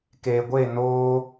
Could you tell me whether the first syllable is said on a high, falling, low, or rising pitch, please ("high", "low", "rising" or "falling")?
low